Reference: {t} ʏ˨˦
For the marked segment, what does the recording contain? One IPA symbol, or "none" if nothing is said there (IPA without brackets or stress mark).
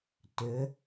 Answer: t